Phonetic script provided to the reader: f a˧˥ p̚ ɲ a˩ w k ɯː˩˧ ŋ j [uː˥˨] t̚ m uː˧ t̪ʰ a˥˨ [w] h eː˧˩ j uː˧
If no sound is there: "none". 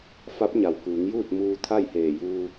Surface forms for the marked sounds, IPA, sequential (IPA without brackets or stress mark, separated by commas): uː˥˨, j